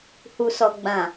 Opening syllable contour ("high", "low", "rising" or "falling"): low